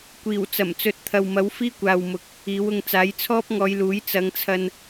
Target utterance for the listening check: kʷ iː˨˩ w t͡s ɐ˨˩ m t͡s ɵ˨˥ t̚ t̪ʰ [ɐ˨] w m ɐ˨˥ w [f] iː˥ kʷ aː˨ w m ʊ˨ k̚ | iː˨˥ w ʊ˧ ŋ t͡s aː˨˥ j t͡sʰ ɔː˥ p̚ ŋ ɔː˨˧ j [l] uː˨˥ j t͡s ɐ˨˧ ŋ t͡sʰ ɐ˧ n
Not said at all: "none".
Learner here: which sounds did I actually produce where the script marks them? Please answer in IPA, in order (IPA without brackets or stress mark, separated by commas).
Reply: ɐ˨, f, l